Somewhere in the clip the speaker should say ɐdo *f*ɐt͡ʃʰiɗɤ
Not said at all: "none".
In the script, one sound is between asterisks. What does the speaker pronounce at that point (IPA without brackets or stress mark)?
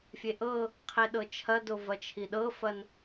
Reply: v